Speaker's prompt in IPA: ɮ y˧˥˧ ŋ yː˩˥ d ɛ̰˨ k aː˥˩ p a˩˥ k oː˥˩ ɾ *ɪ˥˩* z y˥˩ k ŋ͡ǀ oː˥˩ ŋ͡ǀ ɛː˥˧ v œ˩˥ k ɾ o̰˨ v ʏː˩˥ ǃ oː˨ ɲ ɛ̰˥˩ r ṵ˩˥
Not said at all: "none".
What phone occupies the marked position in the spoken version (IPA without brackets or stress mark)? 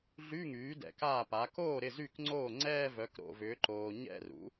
ɪ˥˩